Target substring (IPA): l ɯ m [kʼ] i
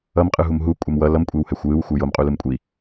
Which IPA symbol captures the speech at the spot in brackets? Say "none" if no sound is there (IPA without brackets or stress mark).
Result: kʷʼ